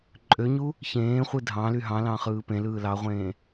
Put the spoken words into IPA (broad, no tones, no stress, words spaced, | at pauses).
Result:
ǃʼøɲu | çẽːχʷɯ dʱɑ̃ly ɦɑ̃lɑ̃ χɯːpẽlɯː lɑʁʷẽː